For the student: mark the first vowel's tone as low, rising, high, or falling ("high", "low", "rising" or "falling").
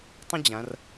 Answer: high